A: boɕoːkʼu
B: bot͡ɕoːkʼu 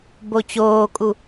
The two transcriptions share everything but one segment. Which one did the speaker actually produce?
B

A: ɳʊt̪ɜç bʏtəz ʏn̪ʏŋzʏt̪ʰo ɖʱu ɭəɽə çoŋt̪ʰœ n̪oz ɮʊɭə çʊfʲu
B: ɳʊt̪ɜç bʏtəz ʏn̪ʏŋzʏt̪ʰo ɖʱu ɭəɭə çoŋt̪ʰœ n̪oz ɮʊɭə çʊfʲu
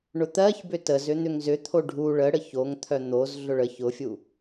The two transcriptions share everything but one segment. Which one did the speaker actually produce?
A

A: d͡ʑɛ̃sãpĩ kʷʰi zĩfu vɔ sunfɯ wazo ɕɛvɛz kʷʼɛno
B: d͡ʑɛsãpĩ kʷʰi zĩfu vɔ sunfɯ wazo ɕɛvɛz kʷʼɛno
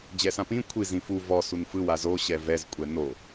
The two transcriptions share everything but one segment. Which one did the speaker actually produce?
B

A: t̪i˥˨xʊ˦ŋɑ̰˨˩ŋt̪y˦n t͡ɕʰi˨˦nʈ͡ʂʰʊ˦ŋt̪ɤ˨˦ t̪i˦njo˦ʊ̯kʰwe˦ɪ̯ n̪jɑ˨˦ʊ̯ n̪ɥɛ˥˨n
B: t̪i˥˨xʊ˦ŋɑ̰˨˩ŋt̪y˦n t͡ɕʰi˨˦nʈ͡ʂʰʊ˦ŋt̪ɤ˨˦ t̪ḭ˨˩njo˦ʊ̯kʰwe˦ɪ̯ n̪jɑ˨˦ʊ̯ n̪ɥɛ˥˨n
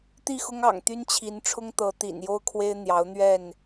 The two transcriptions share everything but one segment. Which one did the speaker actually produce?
B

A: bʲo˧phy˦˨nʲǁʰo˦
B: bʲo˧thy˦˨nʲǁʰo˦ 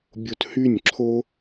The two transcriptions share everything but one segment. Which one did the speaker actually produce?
B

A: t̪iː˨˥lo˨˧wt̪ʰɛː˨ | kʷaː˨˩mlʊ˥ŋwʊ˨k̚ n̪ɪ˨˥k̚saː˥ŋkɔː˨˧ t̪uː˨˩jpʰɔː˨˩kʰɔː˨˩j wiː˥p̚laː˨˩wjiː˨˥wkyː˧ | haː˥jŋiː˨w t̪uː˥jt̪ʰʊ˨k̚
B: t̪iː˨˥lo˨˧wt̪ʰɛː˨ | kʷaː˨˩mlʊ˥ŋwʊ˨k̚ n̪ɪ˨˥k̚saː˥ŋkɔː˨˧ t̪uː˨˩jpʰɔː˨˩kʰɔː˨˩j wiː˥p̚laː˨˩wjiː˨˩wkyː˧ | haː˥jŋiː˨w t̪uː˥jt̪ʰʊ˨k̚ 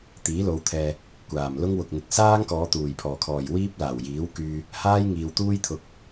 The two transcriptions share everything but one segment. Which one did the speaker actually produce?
A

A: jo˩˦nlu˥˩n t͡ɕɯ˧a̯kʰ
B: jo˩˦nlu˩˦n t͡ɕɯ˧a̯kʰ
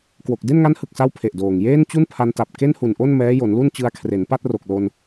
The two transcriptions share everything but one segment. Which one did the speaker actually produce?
A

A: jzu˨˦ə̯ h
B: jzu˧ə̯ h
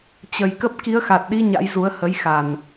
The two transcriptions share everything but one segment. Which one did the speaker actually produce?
A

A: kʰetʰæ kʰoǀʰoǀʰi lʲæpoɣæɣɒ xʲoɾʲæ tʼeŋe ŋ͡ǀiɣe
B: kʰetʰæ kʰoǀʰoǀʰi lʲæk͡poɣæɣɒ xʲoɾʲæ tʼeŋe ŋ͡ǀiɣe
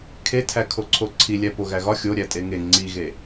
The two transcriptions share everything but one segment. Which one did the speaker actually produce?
A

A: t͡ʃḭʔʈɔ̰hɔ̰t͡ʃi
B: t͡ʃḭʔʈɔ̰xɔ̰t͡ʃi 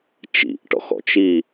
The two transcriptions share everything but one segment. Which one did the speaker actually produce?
B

